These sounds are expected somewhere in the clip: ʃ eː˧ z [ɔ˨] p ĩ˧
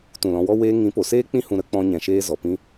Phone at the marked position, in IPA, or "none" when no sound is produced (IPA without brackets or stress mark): ɔ˨